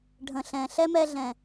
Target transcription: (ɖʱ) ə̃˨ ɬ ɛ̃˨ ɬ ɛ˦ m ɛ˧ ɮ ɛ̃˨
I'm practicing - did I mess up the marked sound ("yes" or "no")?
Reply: no